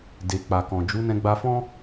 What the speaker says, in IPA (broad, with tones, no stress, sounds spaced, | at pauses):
d e˨ k͡p a˨ k ɔ̃˨ d͡ʒ u˨˦ n ɛ̃˧ ɡ͡b a˧ f ɔ̃˦